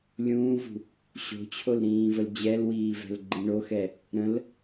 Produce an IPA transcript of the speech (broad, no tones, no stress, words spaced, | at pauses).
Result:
lʲũːvṳ | ɕo̤t͡ɕʰolɾĩːvəl d͡ʑɛlwiːvɛ̤lɡ͡ǃĩ ɳoxɛ | ɾə̃l